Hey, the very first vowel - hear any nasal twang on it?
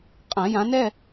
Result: yes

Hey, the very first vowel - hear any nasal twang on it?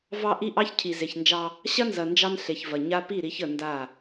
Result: no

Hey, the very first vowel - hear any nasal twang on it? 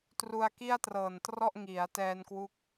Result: no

